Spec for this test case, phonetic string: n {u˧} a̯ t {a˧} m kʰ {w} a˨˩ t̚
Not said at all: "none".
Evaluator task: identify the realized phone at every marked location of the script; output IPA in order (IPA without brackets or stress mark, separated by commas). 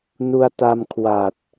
u˧, a˧, w